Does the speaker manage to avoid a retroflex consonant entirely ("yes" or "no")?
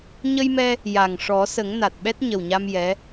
no